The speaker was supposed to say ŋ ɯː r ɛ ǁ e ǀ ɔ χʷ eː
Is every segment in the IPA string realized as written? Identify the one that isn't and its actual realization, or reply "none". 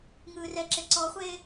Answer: none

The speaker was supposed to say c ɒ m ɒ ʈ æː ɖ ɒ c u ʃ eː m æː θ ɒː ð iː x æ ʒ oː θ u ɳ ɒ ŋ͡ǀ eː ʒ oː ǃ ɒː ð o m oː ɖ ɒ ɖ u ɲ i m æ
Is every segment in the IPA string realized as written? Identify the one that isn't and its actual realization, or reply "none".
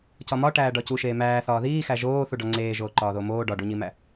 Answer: ɳ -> ɖ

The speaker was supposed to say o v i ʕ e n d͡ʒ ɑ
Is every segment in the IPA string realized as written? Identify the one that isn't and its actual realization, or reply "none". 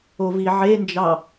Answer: none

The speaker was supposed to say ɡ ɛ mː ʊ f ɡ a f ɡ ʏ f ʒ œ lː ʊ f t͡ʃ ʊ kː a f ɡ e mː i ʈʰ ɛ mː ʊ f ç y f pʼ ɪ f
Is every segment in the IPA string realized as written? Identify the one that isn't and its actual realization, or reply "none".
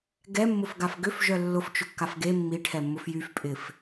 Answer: ç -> j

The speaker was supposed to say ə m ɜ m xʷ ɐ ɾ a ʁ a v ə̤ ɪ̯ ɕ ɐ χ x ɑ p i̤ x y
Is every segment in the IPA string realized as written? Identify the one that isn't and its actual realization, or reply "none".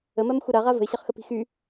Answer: ɑ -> ə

